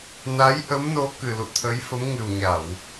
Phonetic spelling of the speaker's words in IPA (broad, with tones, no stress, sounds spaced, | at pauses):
n a˨˦ j ʔ ə˨˦ m n o˨˦ k ɨ˨˩ l ṵ˧˨ t̪ʰ ə˨˦ j f ə˨˦ m ŋ ɨ˨˩ w ɲ a˧˩˨ w